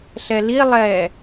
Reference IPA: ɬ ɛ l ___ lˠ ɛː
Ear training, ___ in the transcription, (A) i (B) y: A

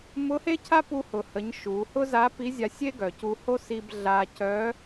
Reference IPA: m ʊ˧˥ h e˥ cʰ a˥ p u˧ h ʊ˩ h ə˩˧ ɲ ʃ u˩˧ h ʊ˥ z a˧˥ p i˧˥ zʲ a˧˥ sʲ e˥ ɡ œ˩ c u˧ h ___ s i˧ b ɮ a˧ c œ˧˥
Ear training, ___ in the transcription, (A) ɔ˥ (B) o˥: B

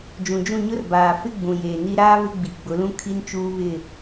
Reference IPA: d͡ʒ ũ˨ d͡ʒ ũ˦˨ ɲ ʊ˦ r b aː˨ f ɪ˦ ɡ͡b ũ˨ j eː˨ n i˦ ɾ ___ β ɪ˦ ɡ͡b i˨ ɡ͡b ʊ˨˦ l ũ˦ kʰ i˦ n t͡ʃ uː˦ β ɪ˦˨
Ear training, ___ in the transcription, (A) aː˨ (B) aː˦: B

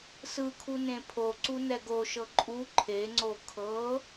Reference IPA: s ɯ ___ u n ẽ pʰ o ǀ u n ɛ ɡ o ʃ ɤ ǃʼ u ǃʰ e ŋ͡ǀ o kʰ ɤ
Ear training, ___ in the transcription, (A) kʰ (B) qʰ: A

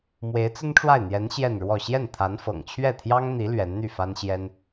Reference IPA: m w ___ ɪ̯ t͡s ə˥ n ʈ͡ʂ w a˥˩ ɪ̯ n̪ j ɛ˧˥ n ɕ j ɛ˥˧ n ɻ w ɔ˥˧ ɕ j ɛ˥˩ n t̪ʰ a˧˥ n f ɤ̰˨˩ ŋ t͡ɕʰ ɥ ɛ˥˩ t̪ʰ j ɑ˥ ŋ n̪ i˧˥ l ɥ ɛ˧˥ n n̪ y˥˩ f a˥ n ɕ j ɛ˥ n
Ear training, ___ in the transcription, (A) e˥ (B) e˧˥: B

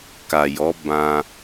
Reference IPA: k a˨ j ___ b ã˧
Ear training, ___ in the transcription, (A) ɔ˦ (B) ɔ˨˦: B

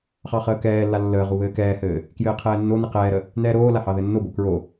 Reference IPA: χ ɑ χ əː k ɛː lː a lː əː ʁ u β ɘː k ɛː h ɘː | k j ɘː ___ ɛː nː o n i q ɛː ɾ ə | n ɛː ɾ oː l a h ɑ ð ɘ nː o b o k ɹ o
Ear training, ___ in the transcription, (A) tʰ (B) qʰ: B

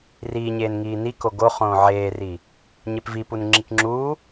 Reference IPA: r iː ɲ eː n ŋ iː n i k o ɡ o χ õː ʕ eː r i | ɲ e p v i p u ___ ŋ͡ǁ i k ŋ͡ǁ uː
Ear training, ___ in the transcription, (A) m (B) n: B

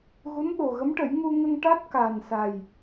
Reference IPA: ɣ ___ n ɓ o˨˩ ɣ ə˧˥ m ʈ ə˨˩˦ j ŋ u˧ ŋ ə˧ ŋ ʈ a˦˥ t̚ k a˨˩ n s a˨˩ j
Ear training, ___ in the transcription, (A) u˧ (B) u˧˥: B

